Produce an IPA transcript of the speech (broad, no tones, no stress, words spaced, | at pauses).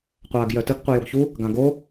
qʷaːɡjœtəɡ qʷɯjoɡçu | ɡãɡo